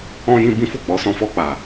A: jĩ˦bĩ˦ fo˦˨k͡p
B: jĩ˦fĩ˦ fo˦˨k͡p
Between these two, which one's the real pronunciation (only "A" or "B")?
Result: A